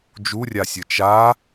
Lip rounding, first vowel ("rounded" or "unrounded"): rounded